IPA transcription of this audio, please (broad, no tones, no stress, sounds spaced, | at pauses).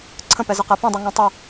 ǀʰ ə̃ p ɛ z ə q ɛ p ĩ dˤ u ŋ ɔ̃ tˤ ɛ